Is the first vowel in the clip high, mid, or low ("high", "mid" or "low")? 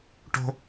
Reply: mid